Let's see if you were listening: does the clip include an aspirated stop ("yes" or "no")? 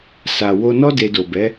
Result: no